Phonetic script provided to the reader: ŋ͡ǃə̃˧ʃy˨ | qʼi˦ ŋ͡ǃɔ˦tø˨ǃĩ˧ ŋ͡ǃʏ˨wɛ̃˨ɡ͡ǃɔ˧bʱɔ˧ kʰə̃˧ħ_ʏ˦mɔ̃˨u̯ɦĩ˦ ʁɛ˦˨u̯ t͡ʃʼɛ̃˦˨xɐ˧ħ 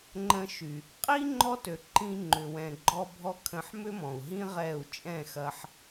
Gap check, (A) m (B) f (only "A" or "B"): A